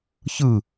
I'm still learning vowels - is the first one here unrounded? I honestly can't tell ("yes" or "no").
yes